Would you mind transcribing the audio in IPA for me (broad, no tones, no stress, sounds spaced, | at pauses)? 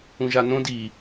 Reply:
ũ ʒ a n õ d i